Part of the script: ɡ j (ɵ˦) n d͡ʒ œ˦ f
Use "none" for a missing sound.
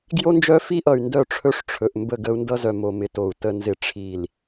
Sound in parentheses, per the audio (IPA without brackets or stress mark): o˦